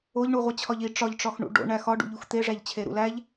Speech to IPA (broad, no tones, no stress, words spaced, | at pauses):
oʎɳuʁʷe t͡ɕʰɒʎi ʈ͡ʂɒʎʈ͡ʂɒx ɳṵɖo̰ɳæ xɒɖṵʎux t̪eʐæʎt͡ɕʰe ɾṵlæʎ